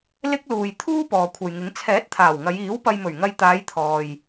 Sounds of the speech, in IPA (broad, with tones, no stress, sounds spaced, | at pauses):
l ɪ˥ k̚ l uː˨ j t̪ʰ uː˥ p ɔː˨ kʷʰ ɐ˨ j ŋ ɪ˨˥ ŋ t͡sʰ ɛː˨˥ t̚ t̪ʰ aː˨˩ w ŋ ɐ˨˧ j iː˨˥ w p ɐ˧ j m ɵ˨˩ ɥ ŋ ɐ˧ j t̪ aː˨˧ j t̪ʰ ɔː˨ j